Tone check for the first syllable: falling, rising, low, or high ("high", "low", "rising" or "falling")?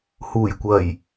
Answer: low